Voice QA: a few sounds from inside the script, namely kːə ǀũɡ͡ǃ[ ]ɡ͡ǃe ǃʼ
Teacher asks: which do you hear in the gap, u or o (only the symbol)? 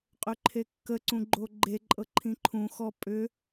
o